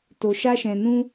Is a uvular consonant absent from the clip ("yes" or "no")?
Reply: yes